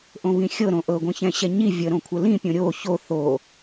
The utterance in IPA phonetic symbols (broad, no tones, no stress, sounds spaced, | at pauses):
ʔ õ β ĩ xʲ ɤ ɾ õ ʔ ɤ ɡʷ ĩ ç ɛ̃ ɕ ɛ ɲ i vʲ ə ɾ õ kʷʰ ə l ĩ pʲ õ ɾʲ o ç o θ o